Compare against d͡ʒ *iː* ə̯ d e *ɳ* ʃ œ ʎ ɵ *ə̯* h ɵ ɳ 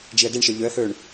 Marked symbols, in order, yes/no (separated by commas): no, yes, yes